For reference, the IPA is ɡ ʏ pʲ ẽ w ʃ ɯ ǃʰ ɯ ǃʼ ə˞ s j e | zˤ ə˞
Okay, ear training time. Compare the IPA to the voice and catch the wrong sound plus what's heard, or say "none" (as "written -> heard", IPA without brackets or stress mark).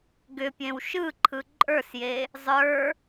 none